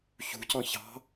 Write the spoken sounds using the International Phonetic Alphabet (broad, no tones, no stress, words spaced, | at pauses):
çṳcɔ̃ çɑ̤